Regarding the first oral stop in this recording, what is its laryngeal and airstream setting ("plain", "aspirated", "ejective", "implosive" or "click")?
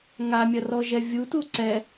plain